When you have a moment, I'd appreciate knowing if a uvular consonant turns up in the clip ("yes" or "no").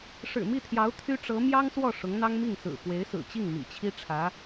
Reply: no